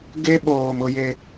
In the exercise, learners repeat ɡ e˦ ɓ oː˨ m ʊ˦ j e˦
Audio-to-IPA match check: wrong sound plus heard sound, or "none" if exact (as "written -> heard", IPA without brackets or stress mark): none